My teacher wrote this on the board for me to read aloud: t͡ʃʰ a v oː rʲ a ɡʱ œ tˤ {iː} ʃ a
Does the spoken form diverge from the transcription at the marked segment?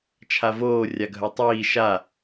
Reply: no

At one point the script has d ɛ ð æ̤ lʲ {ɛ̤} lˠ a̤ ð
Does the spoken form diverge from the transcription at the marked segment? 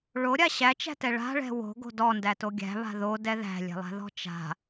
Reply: no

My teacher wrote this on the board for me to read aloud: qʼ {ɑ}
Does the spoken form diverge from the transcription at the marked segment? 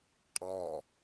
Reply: yes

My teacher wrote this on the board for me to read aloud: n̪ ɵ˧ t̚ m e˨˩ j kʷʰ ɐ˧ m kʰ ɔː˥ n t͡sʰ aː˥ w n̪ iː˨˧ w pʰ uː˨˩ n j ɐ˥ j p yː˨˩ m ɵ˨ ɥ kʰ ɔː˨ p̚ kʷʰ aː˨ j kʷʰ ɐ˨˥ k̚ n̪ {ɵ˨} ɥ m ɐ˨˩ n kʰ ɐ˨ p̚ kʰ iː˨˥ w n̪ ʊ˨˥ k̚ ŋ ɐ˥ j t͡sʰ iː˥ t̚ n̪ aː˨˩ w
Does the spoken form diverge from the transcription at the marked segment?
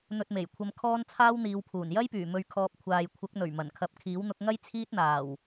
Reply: yes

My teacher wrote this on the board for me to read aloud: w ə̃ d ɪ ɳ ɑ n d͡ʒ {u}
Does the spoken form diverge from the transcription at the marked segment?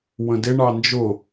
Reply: yes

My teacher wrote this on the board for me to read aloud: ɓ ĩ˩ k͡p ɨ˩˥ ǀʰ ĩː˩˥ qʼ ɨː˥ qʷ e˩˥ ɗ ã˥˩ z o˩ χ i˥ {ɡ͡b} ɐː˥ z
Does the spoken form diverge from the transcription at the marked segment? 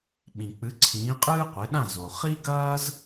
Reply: yes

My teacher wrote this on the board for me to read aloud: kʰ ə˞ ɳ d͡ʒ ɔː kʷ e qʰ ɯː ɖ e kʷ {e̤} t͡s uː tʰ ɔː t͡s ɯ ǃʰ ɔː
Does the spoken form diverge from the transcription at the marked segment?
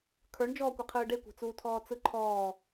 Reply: no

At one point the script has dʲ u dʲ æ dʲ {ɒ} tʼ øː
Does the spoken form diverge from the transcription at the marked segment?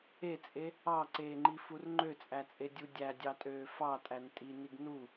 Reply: yes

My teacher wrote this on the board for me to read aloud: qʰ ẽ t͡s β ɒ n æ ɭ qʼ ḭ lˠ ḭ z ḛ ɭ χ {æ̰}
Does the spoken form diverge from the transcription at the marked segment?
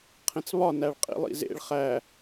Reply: yes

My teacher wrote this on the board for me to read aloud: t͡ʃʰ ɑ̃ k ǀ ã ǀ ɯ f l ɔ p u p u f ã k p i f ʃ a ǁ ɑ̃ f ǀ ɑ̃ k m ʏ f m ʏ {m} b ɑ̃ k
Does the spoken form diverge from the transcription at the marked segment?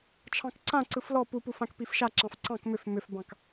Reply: yes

